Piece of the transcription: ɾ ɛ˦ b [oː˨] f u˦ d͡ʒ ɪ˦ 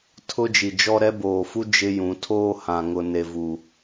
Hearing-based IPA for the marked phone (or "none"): oː˨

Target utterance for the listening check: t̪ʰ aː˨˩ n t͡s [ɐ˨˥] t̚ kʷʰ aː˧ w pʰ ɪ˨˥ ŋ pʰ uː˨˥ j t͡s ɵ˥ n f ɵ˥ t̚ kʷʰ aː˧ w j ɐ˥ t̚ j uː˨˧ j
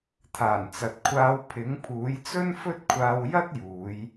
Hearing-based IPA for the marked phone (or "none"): ɐ˨˥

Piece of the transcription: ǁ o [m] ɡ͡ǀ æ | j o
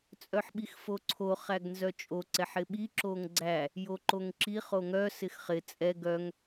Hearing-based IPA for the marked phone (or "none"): ŋ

